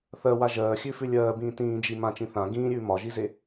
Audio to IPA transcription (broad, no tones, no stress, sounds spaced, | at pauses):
θ ɜ w a ʒ ɜː xʲ ʉ f ʉ lʲ ɜː b ĩː t ĩː d͡ʒ i m ã t͡ʃ ĩ θ ã ɡ ĩː ɾʲ ʉː m ɒ ʒ i z e